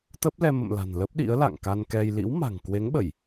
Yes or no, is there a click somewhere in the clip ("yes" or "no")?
no